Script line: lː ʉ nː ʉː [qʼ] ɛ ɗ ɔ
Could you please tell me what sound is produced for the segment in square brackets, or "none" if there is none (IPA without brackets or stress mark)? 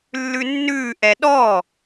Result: ʔ